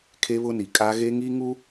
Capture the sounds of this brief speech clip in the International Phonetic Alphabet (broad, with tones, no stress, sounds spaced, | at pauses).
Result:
kʰ e˦ β ʊ˦ n i˨ kʼ a˦ ɣ e˦ ŋ i˦ ŋ u˦